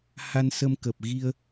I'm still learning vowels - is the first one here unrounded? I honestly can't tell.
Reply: yes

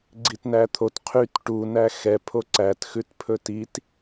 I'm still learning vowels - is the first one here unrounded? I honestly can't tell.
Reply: yes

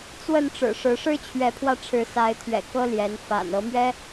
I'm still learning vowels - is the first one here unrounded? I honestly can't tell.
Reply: yes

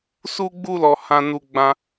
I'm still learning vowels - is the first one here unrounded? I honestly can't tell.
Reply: no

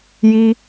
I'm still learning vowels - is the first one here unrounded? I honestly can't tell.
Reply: yes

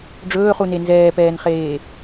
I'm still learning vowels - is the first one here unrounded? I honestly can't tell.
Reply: no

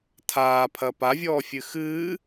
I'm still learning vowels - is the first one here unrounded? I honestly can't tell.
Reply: yes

